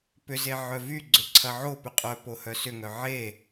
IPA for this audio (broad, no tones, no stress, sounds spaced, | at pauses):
p ʏ z e ʕ œ v y ɡ͡ǀ ʏ ǀʰ ɐ ʕ o p ʏ qʼ œ p o h œ s ʏ ŋ œ ʕ e